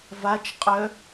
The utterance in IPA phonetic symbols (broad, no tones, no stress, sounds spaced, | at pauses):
v a t͡ʃ qʼ œ